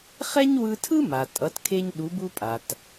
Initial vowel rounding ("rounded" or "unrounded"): unrounded